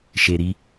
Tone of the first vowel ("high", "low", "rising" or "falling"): low